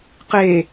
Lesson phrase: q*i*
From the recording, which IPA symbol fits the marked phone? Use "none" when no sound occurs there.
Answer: e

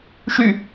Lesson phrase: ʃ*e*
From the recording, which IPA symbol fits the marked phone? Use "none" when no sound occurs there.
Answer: y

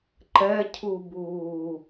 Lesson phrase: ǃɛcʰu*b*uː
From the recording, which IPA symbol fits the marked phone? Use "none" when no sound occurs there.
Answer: b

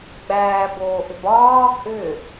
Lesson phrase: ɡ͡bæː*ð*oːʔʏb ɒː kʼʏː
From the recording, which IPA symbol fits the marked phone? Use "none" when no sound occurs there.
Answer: b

